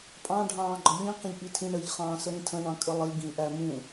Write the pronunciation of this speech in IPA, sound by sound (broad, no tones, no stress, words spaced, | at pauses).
pʼɑ̃ɖʱɑ̃ːɡ͡ǃɒ ʎĩ qə̃ʎʔitʰĩ ɳəʎχɑ̃ː səɾĩtʰə̃ɳɑ̃ kʼəlˠiɡĩ ʔæmũ